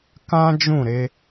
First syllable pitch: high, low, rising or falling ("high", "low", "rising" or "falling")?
high